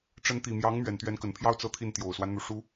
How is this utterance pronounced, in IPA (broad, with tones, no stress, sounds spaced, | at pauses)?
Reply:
ʈ͡ʂ ə˧˥ n t̪ i˨˩ m j ɑ˧˥ ŋ m ɥ ɛ˨˩ n t̪ ɥ ɛ˧˥ n k ə˨˩ n pʰ j ɑ˥ ʊ̯ t͡s ɤ˥˧ t̪ʰ i˥˩ n t̪ j o˨˩ ʊ̯ s w a˦ n n̪ u˩ ʂ u˧˥